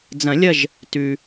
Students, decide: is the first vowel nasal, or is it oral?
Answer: nasal